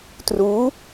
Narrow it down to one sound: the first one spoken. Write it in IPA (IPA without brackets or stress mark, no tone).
t